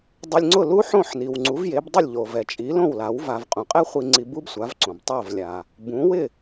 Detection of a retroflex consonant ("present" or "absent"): absent